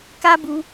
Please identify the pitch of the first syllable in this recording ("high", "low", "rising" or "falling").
high